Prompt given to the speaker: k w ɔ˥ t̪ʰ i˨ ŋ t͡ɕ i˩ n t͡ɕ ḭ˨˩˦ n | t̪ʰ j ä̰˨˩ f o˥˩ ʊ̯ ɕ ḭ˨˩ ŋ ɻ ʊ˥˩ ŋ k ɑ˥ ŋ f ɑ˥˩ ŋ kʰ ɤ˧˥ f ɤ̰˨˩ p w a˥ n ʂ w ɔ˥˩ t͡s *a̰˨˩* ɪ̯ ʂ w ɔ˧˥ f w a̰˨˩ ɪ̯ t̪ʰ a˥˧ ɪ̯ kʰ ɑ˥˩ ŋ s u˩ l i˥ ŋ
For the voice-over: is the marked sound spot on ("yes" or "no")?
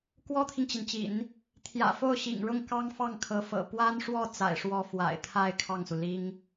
yes